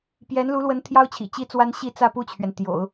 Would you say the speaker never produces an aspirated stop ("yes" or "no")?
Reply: no